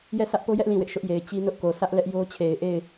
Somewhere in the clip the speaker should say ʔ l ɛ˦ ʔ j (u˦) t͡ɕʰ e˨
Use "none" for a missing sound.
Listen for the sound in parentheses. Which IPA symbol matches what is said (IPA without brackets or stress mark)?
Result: o˦